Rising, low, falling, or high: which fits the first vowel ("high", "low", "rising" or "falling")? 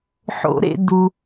rising